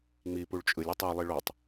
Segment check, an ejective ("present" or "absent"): present